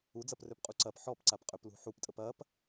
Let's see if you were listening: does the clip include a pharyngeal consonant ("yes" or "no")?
yes